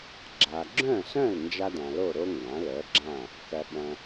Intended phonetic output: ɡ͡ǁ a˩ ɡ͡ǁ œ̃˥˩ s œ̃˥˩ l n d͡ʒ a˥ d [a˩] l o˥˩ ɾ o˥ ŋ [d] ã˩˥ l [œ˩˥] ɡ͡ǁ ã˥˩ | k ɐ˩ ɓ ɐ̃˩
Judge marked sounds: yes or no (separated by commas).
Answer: no, no, yes